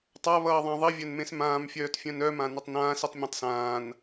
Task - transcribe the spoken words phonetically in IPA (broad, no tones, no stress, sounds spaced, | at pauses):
tˤ a β ʌː ðˤ ã ðˤ i vʲ œ n m ẽ s m ãː m fʲ œː t fʲ œ̃ n œ m ã n ɵ tˤ n ãː s i tˤ mʲ ẽ tˤ s ãː n